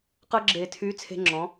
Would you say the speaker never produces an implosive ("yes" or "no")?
yes